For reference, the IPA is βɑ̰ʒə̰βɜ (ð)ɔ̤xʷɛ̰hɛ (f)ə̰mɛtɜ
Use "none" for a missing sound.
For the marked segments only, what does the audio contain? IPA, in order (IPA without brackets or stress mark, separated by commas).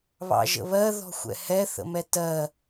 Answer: ð, θ